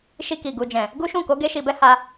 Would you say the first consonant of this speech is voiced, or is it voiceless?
voiceless